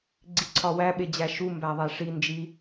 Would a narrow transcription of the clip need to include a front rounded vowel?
no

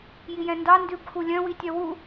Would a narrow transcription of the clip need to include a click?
no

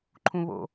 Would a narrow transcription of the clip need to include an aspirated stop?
yes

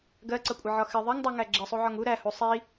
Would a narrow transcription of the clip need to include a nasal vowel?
no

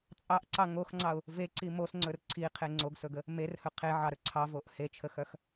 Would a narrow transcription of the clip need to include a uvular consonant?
yes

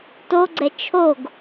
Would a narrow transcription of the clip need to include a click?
yes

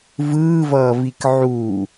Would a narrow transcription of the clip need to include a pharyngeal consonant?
yes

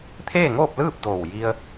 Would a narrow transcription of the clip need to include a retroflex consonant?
no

